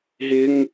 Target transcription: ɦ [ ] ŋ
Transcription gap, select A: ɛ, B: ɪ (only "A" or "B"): B